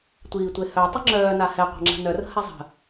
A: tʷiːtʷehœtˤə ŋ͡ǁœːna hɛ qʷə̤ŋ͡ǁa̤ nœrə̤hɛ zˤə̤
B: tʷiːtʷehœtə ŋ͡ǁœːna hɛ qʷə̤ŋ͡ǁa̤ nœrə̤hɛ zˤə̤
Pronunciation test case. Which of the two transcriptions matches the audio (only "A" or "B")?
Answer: A